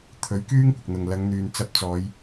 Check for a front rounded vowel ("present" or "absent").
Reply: present